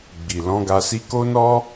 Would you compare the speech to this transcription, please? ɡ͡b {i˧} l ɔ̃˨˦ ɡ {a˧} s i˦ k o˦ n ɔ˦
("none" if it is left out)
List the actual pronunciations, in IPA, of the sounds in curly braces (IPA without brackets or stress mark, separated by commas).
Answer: i˨, a˧